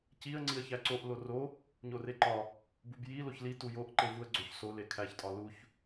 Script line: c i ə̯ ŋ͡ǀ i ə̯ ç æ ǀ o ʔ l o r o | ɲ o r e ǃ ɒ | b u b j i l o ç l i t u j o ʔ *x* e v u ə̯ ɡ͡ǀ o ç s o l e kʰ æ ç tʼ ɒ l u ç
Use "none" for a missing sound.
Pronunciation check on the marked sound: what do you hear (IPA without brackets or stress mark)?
ǃ